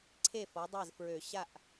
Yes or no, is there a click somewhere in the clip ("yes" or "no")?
yes